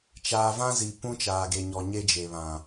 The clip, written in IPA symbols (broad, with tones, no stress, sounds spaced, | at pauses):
t͡ʃ aː˨ v ã˦ z i˨ p ũ˦ t͡ʃ aː˨ ɡ e˨ ɲ ɔ˨ ɲ e˦ d͡ʒ e˨ β ã˨